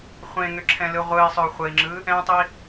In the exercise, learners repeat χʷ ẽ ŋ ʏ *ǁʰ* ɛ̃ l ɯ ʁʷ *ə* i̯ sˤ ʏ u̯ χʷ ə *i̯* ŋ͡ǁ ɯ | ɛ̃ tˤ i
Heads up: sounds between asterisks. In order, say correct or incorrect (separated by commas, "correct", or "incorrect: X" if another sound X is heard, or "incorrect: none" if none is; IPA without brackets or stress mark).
correct, incorrect: ɯ, correct